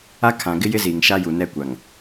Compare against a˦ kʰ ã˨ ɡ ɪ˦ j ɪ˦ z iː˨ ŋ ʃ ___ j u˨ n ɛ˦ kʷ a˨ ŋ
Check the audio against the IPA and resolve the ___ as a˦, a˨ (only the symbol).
a˦